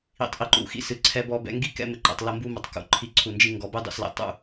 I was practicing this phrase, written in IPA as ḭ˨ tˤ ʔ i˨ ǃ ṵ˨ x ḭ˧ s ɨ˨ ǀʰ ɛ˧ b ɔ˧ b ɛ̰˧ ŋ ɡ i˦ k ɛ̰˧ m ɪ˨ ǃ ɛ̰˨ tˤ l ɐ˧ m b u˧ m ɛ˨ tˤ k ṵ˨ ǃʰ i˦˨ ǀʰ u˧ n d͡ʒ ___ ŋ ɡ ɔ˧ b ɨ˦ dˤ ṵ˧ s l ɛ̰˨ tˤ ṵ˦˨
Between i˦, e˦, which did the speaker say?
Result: i˦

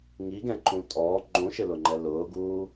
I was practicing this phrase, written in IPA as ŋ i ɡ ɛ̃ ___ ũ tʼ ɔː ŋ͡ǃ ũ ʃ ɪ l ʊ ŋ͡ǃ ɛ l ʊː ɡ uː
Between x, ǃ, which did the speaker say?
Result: ǃ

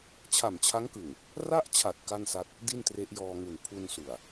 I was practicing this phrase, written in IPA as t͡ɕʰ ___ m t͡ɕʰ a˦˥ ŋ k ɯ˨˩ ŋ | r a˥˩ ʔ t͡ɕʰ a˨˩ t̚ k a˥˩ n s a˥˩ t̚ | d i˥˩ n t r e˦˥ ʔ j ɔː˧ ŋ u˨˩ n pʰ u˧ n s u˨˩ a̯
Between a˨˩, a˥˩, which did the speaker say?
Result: a˨˩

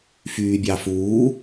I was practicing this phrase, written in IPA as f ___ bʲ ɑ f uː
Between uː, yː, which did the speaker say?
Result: yː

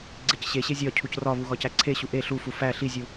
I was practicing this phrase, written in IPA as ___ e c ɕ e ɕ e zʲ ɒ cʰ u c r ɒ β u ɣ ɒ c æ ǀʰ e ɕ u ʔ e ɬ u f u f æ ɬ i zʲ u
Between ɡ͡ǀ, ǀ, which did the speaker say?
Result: ɡ͡ǀ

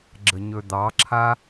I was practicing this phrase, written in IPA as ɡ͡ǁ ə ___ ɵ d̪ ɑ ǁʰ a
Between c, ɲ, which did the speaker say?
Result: ɲ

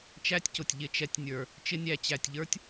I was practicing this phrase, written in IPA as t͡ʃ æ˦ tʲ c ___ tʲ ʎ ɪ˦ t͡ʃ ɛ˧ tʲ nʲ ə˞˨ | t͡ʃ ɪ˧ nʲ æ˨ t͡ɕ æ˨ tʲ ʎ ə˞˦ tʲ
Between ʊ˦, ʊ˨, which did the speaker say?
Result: ʊ˨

